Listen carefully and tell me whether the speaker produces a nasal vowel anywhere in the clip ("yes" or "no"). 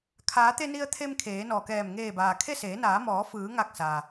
no